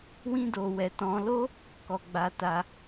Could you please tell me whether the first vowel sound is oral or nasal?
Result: nasal